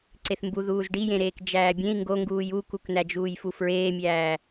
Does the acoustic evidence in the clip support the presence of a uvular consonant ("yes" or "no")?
no